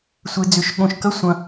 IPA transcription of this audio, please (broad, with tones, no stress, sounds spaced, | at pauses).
sʷ e˨ d͡z ʏ˨ ʃ ɠ õ˨ ʃ k ɐ˦ sʷ ɐ̃˨